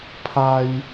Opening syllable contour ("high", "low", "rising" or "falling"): high